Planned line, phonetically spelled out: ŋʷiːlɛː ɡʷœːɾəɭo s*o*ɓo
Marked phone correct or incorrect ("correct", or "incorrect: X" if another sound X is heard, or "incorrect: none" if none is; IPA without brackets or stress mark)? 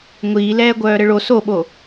correct